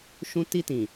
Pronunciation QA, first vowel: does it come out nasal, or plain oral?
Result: nasal